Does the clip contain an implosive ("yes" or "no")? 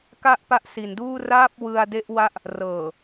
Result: no